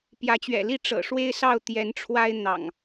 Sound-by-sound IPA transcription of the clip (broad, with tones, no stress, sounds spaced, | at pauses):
p j ä˨˦ t͡ɕ ɥ ɛ̰˨˩ l i˥˨ ʈ͡ʂ ɤ̰˨˩ ʂ w e˦ ɪ̯ s ɑ˥˨ ʊ̯ t̪ j ɛ˨˦ n ʈ͡ʂʰ w a˦ ɪ̯ n̪ ɑ̰˨˩ ŋ